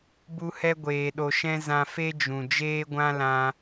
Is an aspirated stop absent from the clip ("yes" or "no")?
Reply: yes